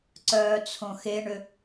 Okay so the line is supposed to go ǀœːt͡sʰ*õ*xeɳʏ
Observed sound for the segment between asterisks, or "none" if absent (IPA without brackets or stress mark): õ